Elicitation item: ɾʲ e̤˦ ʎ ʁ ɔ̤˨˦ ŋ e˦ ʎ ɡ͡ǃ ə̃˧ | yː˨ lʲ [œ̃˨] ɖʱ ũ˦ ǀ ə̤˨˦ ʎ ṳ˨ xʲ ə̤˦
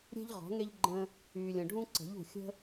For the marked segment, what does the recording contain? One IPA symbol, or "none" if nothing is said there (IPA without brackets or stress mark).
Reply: ə̃˨